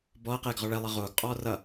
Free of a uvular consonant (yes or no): no